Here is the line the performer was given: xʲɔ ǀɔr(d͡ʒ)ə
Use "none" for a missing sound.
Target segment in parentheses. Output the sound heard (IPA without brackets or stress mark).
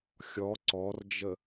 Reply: d͡ʒ